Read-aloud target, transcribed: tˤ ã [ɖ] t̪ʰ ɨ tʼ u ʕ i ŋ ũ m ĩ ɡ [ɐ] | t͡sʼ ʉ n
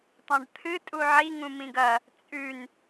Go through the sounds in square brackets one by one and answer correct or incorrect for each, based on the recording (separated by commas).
correct, correct